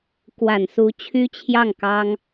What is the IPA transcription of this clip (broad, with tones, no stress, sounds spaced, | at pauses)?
k w a˨˩ n s u˧˥ t͡ɕʰ y˥ t͡ɕʰ j ɑ˥˩ ŋ k ɑ˥ ŋ